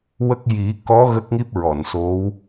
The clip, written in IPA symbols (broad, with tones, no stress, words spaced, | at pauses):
wə˦˥k̚ ji˨˩˦kɔ˧˥ ɣə˦˥k̚ŋi˦˥p̚ɹɔ˨˩˨nso˧˥w